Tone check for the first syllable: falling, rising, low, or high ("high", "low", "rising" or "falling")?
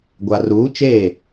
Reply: low